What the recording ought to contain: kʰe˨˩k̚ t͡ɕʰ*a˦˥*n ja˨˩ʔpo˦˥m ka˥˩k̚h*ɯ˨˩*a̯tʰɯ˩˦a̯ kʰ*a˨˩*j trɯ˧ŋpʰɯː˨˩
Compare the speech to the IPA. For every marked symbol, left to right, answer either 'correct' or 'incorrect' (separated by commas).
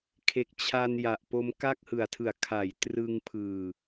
incorrect, correct, incorrect